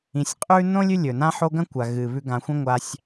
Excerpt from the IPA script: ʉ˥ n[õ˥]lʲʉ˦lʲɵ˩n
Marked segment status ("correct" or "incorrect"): correct